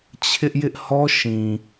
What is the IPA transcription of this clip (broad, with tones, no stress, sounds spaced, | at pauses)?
t͡ɕʰ ɪ˦ ʔ j ɪ˦ ʔ h ɔ˦ ʃ ĩ˨